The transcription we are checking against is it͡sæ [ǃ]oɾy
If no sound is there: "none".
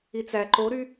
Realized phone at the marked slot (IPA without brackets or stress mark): ǃ